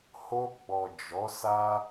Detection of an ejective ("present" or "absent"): absent